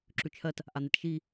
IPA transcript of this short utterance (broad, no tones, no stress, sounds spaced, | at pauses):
ǁ ʉ t͡ʃʰ ɜ t | ʔ a n̪ e t ʃ i